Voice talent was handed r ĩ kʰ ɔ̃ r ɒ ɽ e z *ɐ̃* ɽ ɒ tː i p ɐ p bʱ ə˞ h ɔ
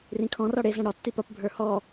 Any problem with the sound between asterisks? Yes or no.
no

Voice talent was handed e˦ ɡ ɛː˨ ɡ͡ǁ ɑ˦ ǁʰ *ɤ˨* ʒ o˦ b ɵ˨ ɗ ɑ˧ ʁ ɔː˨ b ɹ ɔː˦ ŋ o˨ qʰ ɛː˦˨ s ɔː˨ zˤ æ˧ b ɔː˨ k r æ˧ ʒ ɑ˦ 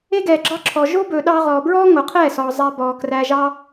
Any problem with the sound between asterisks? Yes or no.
yes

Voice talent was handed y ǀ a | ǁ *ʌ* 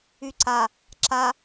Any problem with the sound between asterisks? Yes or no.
yes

